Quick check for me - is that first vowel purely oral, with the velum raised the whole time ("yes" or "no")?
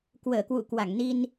yes